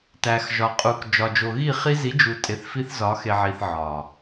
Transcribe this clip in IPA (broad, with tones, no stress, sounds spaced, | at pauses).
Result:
t æ˨ x ʒ ɒ˨ qʼ u˨ k d͡ʒ ɒ˨ d͡ʒ o˨ ɣ i˦˨ χ i˦ z i˨˦ d͡ʒ u˨ tʼ e˨ θ f i˦ θ z ɒ˨˦ x e˨ ʕ i˨ θ ʕ ɒ˨